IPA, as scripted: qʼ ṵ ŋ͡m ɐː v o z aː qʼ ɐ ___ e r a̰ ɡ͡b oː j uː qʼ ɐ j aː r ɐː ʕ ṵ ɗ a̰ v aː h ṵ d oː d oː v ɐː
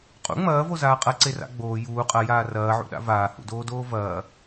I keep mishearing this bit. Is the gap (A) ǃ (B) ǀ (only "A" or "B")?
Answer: B